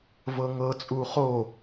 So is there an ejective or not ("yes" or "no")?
yes